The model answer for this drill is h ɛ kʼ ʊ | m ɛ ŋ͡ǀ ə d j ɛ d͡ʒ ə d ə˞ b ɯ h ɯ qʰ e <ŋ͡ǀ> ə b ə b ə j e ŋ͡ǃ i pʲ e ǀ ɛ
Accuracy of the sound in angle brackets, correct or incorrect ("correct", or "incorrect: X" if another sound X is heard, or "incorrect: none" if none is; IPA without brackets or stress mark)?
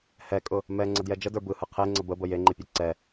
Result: correct